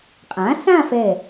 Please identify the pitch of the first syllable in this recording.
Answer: rising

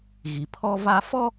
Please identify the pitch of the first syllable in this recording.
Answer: low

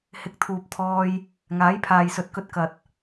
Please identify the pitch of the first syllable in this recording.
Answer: rising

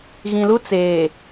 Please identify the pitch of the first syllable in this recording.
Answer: low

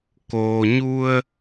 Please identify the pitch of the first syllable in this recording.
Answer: low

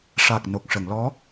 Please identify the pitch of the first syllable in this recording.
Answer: low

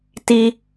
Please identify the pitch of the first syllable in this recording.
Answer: high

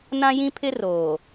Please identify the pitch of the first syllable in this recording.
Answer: high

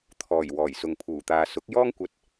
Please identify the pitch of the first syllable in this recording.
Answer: low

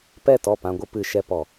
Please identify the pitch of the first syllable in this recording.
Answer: falling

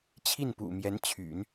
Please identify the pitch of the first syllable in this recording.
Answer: falling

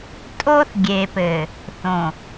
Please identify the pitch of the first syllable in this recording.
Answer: high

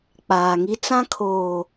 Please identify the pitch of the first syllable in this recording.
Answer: low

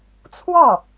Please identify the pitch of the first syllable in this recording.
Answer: falling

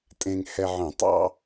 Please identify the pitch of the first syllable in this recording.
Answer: low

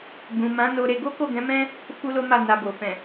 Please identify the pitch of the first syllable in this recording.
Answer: low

